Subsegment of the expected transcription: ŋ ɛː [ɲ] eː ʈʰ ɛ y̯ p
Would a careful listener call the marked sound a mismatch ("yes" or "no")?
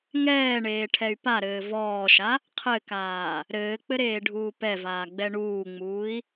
yes